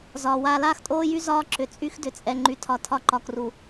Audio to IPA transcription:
z ɒː˨ w aː˦ l aː˦ x tʼ oː˦ j y˦ z ɒː˦ ǁ ʏ˨ t͡sʼ y˦ x d ʏ˨ t͡sʼ ɛ˨ ŋ͡ǃ y˨ tʰ ɒ˨ tʰ ɒ˦ ǃ ɒ˨ k r u˨

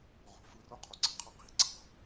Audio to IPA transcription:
ʁ o̤ f ɯ r o qʰ o ɡ͡ǀ ɑ̤ qʰ ɑ q i̤ ǀ ɑ̤

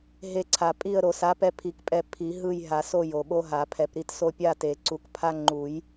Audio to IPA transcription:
ɦ e˦˨ ǀʰ a˨˩˦ pʼ i˦˨ ə̯ ɾ o˨˩˦ s a˨˥ p ɛ˦ pʰ i˨˩˦ k pʼ ɛ˦˨ pʰ i˨˩˦ ɦ ɯ˦˨ j ɦ a˨˩˦ s o˦˨ j o˨ ɓ o˦ ɦ a˨˩˦ pʰ ɛ˨ p ɾ i˦ t s o˦ pʲ a˦˨ t e˨˩˦ ǀ u˨˥ k pʰ a˦ ŋ͡ǃ u˨˩˦ j

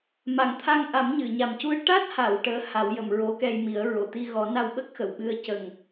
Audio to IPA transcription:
m a˨˩ ŋ t̪ʰ a˧ ŋ ʔ a˨˩˦ m ɲ ɨ˨˩˨ ɲ a˨˩ m c u˧ ə̯ ʈ a˦˥ t̚ h a˨˩˨ w ʈ əː˧˥ h a˨˩˦ w j ə˨˩˨ m ɹ o˧˥ k ɛ˧ j m i˨˩˦ ə̯ ɹ o˨˩˨ t̪ i˧ ɣ ɔ˨˩˦ n a˧ w ɓ ə˦˥ k̚ x ə˨˩˨ w ɓ ɨ˧ ə̯ c ə˨˩ ŋ

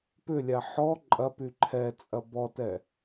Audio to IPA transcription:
p ʏ lʲ a ħ ɔ ǃʼ ɐ p y ǃʰ ɛ t͡sʼ ɐ b ɔ t ɛ

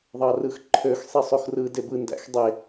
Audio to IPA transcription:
ðˤ ɑ r ɯ x ǃʰ ø x sˤ i sˤ o x r ɯ d e b ɯ n d æ̰ x dˤ e

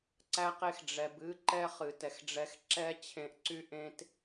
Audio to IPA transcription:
ǀ æ˦ q e˦ x ɖ͡ʐ ɛ˧ b ɨ˦ ǃ ɛ˦ χ ɨ˨ t ɛ˨ x ɖ͡ʐ ɛ˧ x ǁ ɛ˦ t͡ɕʰ ẽ˧ ʔ ǀ y˦ ʔ ẽ˦ t

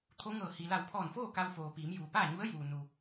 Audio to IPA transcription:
t̪ʰ o˧˥ ŋ ɤː˧˩ h i˩ l a˧˩ w pʰ ɔː˧˩ n f oː˥˨ k a˧ w f oː˩ p iː˩˧ m j uː˩ p aː˥˨ ɲ u˧˥ ə̯ j uː˩ n u˩

